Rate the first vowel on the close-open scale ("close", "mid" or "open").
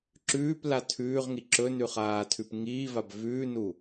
close